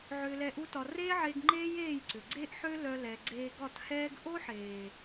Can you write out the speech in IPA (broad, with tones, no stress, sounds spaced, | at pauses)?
ʕ ʏː˧ l ɛ˧ ʔ u˦ t ɒ˧ r eː˦ ʕ e˧ ɡ ŋ͡ǃ eː˦ j eː˦˨ j ǀ ʏ˨ ɡ͡ǀ e˦ ʔ ħ ø˦ l œ˧ l ɛ˨ ɡ͡ǀ eː˧ ɡ ɒ˦˨ t h ɛː˦ ɡ ʔ o˦ ħ eː˨